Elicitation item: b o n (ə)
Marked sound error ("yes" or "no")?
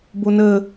no